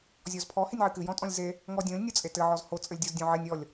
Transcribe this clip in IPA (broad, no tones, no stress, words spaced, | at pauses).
zʲɔzpʰɔ henʲʕɨkɨjɔ̃ tʼɔ̃lʲze | ŋɔdʲõlʲ nʲot͡sʼetɘ ʕɔzho t͡sʼɘlʲdʲozdʲõʕenʲ ɔlʲ